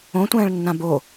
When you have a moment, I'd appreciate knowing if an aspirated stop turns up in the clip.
no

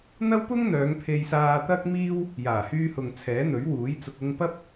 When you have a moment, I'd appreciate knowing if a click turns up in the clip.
no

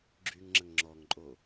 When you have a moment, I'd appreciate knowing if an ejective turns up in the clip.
yes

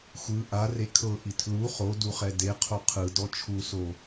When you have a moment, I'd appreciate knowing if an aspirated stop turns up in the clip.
yes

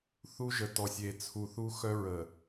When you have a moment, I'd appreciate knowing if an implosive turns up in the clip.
no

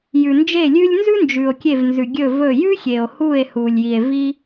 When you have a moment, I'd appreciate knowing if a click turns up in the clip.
no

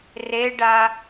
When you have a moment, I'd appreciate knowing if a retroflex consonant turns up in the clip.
yes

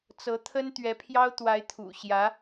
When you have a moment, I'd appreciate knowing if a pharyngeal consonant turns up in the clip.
no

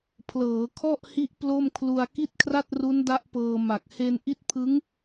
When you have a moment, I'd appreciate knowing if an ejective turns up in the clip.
no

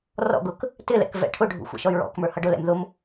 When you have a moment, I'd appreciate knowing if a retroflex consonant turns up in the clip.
yes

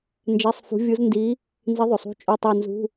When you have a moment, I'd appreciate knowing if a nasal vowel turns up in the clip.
no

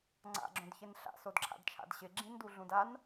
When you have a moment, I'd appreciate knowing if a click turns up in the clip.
yes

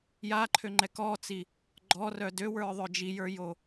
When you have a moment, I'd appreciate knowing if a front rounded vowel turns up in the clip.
yes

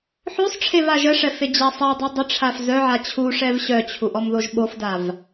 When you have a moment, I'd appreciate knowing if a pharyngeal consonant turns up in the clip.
yes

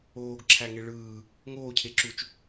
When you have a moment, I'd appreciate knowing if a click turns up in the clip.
yes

